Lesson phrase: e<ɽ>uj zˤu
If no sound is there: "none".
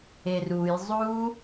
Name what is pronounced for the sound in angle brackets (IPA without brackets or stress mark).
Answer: r